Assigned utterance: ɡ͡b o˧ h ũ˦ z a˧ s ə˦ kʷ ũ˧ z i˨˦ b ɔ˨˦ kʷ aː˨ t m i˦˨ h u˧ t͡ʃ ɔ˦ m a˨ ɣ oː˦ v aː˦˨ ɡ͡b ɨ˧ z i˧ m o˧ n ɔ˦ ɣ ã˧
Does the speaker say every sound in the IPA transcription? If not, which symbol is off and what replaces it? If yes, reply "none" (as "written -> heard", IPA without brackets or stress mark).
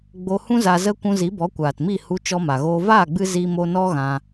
s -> z